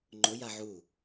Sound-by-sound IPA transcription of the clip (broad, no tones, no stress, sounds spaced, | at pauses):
ŋ͡ǃ ʊ j a ʕ u